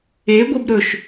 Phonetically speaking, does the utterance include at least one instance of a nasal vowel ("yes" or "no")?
no